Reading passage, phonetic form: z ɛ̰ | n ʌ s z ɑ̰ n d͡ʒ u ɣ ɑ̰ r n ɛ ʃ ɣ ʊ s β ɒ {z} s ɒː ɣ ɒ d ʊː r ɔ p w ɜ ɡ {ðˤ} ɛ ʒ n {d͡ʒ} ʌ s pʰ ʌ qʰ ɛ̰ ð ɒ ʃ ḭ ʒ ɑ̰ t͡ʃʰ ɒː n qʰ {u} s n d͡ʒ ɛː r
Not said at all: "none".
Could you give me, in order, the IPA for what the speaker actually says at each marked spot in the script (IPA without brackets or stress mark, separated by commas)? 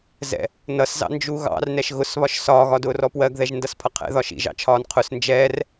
ʃ, ð, d, ʊ